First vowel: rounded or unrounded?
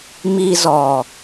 unrounded